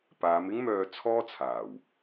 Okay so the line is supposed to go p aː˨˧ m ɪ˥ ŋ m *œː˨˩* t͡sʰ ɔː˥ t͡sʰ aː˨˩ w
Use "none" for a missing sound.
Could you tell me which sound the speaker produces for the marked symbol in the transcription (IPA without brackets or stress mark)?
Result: œː˧